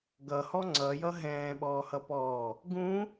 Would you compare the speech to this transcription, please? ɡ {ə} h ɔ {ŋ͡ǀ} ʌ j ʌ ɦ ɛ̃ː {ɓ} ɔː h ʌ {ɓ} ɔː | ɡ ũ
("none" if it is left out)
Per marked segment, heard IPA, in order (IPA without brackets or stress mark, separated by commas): ʌ, ŋ͡ǀ, ɓ, p